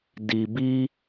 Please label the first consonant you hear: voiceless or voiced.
voiced